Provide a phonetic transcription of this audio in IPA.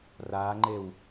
r a ŋ͡ǃ e w

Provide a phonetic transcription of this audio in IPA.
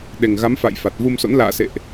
ɗ e˨˩ ŋ ɣ a˨˦ m f a̰˧˨ j f a˨˩ t̚ v u˧ m s o̰˧˥ n l a̰ː˧˨ s ḛ˧˨ ʔ

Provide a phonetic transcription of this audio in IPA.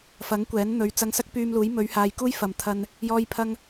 f ɐ˨˥ ŋ kʷ ɛː˨˥ n n̪ ɵ˨˧ ɥ t͡s ɐ˧ ŋ s ɐ˥ k̚ p yː˧ m l uː˨˥ j m ɵ˨˧ ɥ h aː˨ j k uː˥ j f ɐ˨ m t̪ʰ ɐ˧ n | j ɔː˥ j pʰ ɐ˥ ŋ

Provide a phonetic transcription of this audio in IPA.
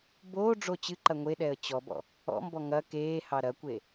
b oː ɖ͡ʐ o t͡ɕ ɨ ǃ ɐ ŋʷ e ɗ ɛ ə̯ t͡ɕ ɔ b ɔ̰ | ɔ̰ m b ɔ ŋ ɐ k eː h ɑ ɾ ɐ kʷ e

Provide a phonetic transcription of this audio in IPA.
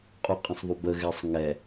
qʼ u qʼ ə̃ sˤ ðˤ u b ə ɣ ɛ sˤ ŋ ɛ

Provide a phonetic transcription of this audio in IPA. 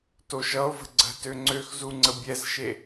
t o ʃ ʌ o̯ v ə̤ ɡ͡ǀ ə̤ t ø ŋ͡ǀ ø x z u ŋ͡ǀ ə bʲ ɛ z ʃ e

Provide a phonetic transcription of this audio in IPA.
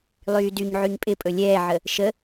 lˠ yː d y ɲ ʕ y ɲ pʼ ɪ pʼ ɵ lʲ ɛː ʕ ə | ʃ ə

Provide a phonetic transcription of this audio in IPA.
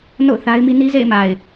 n o̰˦˨ ʊ̯ θ a˦ ɪ̯ m i˦ n i˦ z ḛ˦˨ ɪ̯ m a˨ ɪ̯

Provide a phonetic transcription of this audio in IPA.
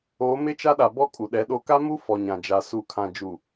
oː˨˦ m ɪ˦ t͡ʃ a˦ ɗ a˨ b ɔ˦ kʼ u˨ ɗ ɛ˨˦ ɗ o˨ k a˦ m u˦ f ɔ˨ ɲ ã˨ d͡ʒ a˨ s u˨ kʰ ã˨ d͡ʒ u˨

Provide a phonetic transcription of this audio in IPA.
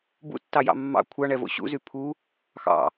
b ṵ tː ɑ j ɑ̰ mː ɑ̰ kʷʰ ɑ ɳ ɛ v o̰ ɕ ṵ z y pʰ u | x ɑ̰

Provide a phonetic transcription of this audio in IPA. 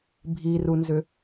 bʱ i r u n z ʏ

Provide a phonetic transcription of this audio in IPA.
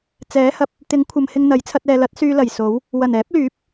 t͡s ɛː˨˥ h ɐ˨ p̚ | t̪ ɪ˨˥ ŋ kʷʰ ɐ˨ m h ɪ˧ ŋ n̪ ɐ˨˥ j t͡sʰ ɐ˧ t̚ ɛː˨ l ɐ˨˥ t̚ s yː˧ l ɐ˨˩ j s o˨˥ w | w ɐ˨˩ n ɛː˨˥ p̚ l yː˨˥ p̚

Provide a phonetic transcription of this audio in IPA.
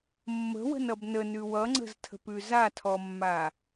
mː ə̤ w ə̤ n ʌ b n ə n ʉ w ʌ ŋ͡ǀ ə̤ z tʰ ə̤ p ʉ z a tʰ ɔ mː a

